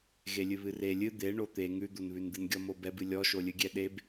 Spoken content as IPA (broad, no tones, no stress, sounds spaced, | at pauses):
ɣ e lʲ ɨ β ɨ r e lʲ ɨ d̪ e ɳ o t̪ e ŋ ʉ d̪ o n β ʉ n d̪ ɨ n ɡʲ ɔ m o b ɛ b ɨ lʲ ɔ ʃ o lʲ ɨ ɡʲ ɛ ɗ e b